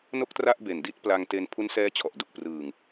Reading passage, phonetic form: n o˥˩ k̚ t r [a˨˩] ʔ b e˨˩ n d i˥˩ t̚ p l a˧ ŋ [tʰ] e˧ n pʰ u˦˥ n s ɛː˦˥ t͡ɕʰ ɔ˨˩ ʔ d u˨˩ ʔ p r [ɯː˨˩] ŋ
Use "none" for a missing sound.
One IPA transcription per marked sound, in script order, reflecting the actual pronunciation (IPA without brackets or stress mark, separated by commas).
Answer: a˥˩, t, ɯː˨˩